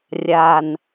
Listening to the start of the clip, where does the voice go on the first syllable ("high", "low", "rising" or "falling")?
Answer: low